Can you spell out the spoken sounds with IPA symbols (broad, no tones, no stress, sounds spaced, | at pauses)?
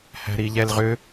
h æ̤ ɾ i ʎ ɛ l ʁ ʏ